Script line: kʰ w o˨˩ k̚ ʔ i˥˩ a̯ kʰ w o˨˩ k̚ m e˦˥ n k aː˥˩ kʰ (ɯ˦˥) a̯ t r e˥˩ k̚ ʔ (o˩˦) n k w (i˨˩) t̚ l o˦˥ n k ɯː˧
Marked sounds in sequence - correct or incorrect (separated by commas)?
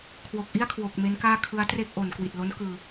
correct, correct, correct